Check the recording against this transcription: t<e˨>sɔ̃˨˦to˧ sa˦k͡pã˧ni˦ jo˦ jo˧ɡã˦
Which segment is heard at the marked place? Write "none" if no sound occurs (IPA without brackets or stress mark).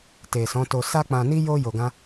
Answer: e˨